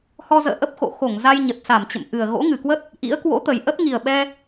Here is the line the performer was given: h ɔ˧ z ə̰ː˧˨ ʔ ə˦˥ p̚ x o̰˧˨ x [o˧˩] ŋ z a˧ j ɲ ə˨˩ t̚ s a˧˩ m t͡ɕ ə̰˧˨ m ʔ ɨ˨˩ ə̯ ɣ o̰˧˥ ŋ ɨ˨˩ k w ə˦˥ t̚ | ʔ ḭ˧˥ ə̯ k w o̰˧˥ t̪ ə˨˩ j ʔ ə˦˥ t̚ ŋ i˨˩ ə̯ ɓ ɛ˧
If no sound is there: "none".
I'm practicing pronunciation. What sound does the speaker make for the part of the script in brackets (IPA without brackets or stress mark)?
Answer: o˧˩